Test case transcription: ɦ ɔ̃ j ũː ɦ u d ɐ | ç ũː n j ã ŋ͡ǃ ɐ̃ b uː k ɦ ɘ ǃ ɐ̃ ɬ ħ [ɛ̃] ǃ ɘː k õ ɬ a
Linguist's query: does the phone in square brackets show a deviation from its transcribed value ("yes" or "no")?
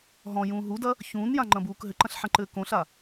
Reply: no